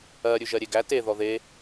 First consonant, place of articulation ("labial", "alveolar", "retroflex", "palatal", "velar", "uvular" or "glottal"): alveolar